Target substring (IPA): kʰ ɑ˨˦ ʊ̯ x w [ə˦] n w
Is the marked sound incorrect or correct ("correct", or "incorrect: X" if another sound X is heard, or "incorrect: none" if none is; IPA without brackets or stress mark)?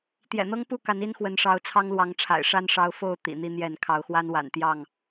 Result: incorrect: a˦